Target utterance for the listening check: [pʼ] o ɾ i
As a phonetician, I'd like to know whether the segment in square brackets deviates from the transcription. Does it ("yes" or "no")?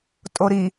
yes